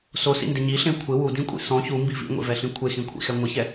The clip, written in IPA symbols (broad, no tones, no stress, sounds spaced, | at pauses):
s o s ḭ n d ɪ ɲ i ɬ ẽ kʷʰ ɪ w u d ĩ kʷʼ ḭ s ɔ̃ ç u m b i v ḭ ŋʷ ḛ v ɛ ɬ ĩ kʷʰ e x ĩ kʷʰ ḭ x ɛ ŋʷ ɪ ç ɛ